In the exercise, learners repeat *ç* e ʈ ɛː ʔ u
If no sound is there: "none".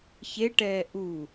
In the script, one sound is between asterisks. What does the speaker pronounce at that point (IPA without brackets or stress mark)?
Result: ç